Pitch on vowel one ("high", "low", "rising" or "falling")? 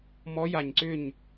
rising